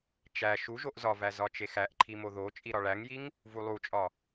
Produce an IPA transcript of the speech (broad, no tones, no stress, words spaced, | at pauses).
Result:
t͡ʃæ ʃuʒoʔ zɒvæ zɒt͡ʃexæʔǃʰi moðot͡ʃʼi ɾɒɭæŋjiŋ | vulˠut͡ʃʼɒ